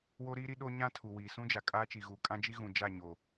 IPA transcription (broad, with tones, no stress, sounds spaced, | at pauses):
w o˦ ɾ iː˦ ɾ i˦ ɗ o˦ ɲ ã˦ tʰ u˨ w iː˨ s ũ˦ d͡ʒ a˨ kʼ aː˦ t͡ʃ i˨ ɣ uː˨ kʼ ã˦ d͡ʒ i˦ ɣ ũ˨ d͡ʒ a˦˨ ɲ o˨